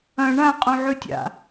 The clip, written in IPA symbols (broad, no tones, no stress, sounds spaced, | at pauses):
ɐ̃ ɳ ã qʼ ũ ʕ ʉ tʲ a̰